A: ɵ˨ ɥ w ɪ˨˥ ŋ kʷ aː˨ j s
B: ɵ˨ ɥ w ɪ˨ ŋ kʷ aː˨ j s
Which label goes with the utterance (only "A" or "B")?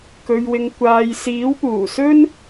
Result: B